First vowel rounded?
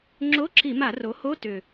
yes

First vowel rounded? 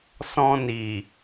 yes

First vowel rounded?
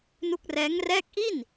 yes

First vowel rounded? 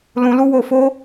yes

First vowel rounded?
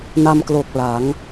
no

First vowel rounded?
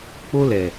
yes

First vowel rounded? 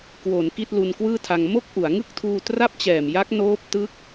yes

